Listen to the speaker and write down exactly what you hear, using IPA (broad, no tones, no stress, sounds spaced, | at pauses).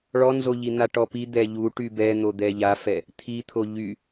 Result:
ɭ ɔ n z o ʎ i n̪ a ʈ ɔ p i d̪ ɛ ʎ u ʈ y b ɛ n̪ o d̪ ɛ ʎ a f ɛ | t̪ʰ i t̪ʰ o ʎ y